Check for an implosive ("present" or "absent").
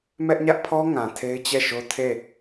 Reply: absent